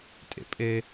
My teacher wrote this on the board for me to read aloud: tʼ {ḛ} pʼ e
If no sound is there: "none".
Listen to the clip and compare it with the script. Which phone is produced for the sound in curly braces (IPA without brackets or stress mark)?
ḛ